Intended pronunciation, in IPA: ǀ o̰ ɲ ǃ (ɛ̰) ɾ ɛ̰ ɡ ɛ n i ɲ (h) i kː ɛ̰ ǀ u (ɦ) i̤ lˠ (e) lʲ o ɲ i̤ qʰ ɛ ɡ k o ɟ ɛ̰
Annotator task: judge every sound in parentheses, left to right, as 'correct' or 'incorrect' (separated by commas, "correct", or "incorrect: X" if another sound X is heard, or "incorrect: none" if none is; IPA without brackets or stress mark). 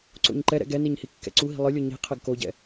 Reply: incorrect: ɛ, correct, correct, incorrect: ɨ